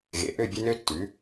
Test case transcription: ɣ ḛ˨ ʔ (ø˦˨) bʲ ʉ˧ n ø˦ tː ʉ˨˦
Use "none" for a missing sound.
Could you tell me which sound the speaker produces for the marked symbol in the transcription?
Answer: ø˦˨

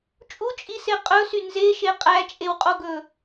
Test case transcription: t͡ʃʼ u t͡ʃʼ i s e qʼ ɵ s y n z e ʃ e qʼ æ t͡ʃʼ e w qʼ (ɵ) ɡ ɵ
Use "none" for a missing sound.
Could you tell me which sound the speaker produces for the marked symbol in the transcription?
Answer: o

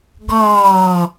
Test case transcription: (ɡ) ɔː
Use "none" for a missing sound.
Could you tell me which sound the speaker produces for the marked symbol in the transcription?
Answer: ɡ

